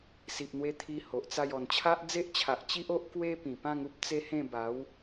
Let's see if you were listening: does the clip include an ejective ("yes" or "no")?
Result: no